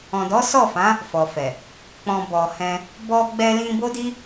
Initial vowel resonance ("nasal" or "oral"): nasal